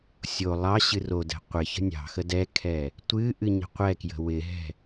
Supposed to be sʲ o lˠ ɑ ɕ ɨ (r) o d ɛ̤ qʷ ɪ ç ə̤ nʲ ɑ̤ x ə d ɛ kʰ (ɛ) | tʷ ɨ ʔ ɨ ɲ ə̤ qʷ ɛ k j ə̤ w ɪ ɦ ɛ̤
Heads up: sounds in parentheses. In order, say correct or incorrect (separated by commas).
correct, correct